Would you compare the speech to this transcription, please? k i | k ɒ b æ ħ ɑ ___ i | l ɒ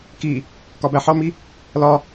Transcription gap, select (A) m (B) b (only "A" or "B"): A